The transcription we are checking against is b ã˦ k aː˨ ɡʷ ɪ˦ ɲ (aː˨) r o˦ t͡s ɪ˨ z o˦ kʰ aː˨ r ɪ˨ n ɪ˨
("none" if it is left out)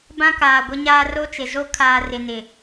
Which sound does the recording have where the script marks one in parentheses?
aː˦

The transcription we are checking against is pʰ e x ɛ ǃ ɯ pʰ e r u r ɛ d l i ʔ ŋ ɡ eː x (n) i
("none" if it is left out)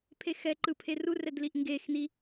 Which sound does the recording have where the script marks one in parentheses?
n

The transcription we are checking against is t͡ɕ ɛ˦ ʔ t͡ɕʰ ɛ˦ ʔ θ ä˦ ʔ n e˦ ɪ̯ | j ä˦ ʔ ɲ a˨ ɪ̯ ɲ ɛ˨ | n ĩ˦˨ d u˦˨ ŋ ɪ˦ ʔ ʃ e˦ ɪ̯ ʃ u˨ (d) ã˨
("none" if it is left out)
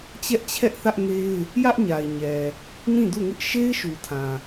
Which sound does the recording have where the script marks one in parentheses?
tʰ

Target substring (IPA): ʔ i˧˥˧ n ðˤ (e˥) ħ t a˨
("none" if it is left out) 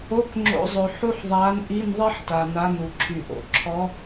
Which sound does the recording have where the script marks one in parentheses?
e˥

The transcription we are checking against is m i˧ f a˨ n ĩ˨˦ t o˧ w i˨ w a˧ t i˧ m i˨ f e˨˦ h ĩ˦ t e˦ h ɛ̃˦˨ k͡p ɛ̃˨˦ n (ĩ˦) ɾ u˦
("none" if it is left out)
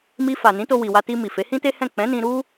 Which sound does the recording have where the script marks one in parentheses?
ĩ˧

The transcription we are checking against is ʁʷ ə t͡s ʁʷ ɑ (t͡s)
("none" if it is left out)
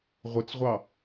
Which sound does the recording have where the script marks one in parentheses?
none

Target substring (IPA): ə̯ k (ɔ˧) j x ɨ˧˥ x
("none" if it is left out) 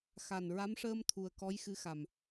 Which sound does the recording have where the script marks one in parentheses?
ɔ˧˥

